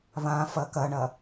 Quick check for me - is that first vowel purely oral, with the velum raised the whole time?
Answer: no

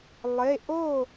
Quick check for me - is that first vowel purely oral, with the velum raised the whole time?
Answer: yes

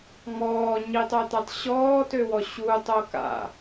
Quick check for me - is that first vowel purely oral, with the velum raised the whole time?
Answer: yes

